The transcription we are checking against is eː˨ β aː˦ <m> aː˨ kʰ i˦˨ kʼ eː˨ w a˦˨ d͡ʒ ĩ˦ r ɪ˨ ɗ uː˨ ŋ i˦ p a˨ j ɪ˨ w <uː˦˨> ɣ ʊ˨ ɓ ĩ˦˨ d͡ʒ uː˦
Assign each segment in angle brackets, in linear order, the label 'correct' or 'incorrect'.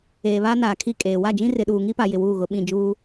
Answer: incorrect, correct

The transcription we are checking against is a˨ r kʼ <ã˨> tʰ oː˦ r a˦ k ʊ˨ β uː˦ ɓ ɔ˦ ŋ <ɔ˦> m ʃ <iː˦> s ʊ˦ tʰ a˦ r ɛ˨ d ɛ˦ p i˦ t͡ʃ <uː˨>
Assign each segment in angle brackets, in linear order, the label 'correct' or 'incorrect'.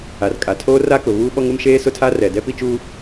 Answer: incorrect, incorrect, incorrect, incorrect

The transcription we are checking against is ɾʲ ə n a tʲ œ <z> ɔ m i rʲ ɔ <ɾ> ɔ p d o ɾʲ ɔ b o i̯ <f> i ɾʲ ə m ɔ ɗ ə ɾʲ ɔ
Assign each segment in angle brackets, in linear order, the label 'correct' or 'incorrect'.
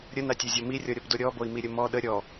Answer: incorrect, incorrect, incorrect

